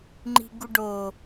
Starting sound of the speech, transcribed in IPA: ŋ͡ǃ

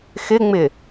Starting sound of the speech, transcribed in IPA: x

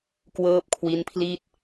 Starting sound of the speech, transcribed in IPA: k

